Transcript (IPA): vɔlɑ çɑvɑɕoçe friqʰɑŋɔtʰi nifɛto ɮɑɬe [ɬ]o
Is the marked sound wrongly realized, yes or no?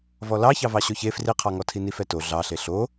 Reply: no